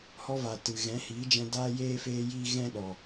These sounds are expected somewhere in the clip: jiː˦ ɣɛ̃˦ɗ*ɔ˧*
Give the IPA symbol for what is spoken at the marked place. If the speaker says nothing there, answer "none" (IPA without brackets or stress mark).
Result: ɔ˨